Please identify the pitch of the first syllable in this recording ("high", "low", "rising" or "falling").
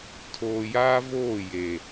low